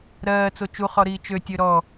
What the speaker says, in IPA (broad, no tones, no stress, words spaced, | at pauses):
ɾɜːt͡so t͡ʃuχɔɾiː t͡ʃøtʲø ɾɔ